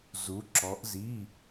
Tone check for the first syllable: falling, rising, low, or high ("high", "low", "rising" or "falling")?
rising